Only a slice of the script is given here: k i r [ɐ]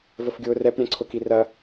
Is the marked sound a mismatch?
no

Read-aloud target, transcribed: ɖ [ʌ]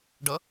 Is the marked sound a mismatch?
no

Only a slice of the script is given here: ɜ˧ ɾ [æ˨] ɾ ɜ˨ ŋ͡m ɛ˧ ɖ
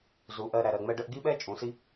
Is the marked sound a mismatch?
no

